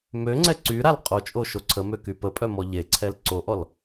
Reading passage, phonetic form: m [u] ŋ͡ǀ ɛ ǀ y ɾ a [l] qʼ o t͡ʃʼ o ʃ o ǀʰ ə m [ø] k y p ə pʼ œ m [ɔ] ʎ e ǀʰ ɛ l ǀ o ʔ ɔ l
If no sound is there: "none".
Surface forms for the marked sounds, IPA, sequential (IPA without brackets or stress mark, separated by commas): ø, l, ø, ɔ